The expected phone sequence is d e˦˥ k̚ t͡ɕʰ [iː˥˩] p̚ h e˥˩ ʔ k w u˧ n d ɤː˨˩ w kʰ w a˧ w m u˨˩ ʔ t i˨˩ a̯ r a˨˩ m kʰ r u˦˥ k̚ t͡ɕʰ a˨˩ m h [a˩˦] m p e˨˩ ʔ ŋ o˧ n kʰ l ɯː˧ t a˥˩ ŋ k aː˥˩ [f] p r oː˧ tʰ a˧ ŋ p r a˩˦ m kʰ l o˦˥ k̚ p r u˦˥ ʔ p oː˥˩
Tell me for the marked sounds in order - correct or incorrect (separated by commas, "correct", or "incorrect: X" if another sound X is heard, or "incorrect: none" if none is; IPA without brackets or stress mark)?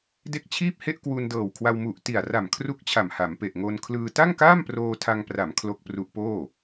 correct, correct, incorrect: m